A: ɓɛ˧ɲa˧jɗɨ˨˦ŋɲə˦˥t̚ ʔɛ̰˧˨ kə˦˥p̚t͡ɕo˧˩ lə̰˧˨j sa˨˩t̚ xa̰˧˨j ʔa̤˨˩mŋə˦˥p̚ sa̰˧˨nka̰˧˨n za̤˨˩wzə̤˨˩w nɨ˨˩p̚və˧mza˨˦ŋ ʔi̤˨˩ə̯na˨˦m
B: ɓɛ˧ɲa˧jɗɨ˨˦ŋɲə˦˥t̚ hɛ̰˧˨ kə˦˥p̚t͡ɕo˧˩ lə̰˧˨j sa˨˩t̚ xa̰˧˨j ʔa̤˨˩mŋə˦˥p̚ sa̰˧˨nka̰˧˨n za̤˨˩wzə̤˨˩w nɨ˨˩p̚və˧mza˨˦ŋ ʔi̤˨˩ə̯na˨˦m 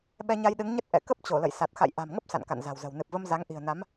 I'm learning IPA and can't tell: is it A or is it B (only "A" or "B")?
A